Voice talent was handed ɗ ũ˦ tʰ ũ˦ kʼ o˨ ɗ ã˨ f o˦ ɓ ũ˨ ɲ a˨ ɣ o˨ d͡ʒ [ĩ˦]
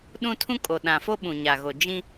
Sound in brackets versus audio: correct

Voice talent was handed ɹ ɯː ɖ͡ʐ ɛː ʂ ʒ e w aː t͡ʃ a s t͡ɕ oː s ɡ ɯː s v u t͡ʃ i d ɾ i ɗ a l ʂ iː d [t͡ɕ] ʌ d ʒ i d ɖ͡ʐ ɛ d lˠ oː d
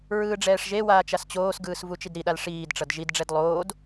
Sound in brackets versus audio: incorrect: ʈ͡ʂ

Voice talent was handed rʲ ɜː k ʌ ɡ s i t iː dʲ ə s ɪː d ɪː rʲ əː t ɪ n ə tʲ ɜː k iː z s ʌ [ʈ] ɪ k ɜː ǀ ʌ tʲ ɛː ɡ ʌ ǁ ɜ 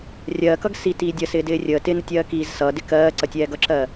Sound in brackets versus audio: incorrect: d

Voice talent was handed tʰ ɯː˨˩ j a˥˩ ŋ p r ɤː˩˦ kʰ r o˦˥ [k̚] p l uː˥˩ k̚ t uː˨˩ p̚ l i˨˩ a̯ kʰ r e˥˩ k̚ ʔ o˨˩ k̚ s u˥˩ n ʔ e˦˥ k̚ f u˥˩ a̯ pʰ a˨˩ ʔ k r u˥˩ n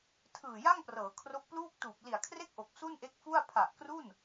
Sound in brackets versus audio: correct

